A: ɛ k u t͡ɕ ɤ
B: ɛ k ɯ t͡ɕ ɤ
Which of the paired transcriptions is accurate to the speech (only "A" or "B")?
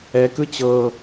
B